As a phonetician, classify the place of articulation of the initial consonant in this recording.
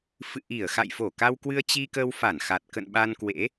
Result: labial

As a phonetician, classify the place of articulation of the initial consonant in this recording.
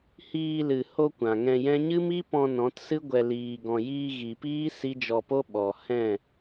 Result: glottal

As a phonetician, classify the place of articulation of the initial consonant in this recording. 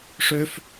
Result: retroflex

